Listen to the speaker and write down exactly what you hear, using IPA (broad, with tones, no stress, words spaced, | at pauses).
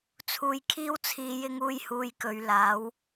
t͡sʰuː˧jkʰiː˥wt͡sʰiː˧ jɪ˥ŋuː˥jhuː˧jkɵ˨˧ɥ laː˨˥w